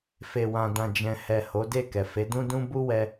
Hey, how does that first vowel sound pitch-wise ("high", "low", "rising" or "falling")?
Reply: low